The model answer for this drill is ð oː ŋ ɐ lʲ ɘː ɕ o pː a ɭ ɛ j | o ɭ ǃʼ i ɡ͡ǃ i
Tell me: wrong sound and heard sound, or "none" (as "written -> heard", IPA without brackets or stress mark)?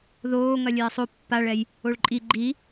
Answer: ɕ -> sˤ